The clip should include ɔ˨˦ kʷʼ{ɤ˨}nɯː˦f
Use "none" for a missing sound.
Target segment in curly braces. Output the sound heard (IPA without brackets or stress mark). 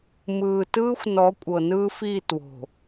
ɤ˨